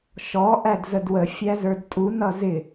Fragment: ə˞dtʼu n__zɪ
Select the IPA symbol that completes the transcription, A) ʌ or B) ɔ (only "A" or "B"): A